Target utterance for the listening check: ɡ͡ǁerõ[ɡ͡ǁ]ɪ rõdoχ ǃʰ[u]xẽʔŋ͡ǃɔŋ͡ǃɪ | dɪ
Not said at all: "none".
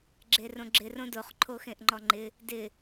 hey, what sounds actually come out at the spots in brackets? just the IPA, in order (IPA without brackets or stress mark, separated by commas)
ɡ͡ǁ, o